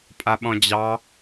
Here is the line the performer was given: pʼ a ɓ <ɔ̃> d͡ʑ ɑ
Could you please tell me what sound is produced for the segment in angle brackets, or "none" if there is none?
ɔ̃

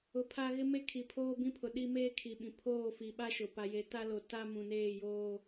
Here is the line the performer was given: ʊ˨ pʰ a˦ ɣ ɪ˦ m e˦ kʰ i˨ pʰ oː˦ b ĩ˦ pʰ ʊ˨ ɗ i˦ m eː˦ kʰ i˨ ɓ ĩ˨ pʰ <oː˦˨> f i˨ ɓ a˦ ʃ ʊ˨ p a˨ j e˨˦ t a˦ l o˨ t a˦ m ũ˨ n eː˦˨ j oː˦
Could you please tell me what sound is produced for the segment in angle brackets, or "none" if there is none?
oː˦˨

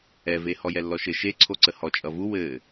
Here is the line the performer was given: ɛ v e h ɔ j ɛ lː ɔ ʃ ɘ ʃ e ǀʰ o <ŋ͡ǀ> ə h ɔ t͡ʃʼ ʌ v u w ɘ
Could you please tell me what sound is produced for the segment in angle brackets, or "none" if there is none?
ǀ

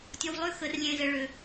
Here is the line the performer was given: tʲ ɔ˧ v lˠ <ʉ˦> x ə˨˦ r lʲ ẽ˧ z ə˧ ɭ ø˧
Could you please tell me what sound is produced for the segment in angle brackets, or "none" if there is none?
ø˦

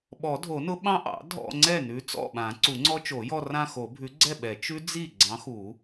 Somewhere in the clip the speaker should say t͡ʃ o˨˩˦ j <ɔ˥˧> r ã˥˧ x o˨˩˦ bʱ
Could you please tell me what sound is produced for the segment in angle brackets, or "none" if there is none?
ɔ˥˧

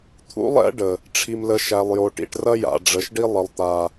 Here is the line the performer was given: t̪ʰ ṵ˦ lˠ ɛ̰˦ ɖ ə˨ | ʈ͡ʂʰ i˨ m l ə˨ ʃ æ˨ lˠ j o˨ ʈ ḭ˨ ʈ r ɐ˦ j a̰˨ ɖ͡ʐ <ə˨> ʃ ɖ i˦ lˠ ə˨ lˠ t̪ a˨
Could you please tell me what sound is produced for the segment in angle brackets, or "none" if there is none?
ə˨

